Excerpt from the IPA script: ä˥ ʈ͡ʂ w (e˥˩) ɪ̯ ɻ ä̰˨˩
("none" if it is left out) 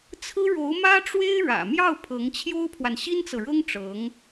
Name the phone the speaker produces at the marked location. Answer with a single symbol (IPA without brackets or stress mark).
e˥